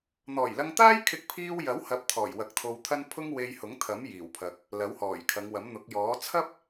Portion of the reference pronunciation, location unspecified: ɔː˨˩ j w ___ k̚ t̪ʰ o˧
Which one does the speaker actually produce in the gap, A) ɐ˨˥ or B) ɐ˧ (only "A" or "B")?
A